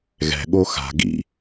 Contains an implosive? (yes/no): yes